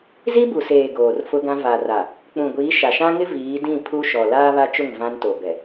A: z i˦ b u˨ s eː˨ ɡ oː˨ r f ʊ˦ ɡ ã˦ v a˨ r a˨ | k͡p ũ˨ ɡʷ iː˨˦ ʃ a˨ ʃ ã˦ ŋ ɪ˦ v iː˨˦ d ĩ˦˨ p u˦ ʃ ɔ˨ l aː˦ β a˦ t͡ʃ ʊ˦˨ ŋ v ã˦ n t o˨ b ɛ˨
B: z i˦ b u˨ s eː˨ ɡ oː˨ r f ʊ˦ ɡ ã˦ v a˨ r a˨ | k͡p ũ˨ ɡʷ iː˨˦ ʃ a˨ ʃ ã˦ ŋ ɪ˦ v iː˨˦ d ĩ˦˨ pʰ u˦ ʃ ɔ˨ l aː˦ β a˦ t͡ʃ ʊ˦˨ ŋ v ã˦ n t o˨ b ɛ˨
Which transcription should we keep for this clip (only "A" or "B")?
B